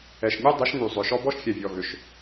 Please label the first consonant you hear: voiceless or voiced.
voiceless